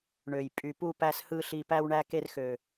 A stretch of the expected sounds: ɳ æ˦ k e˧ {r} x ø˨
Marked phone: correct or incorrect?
correct